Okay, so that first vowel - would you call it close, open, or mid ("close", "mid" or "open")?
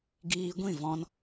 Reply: close